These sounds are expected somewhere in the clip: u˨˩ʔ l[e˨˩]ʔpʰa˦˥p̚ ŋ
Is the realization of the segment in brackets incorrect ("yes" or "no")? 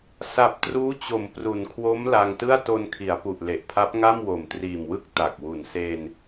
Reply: no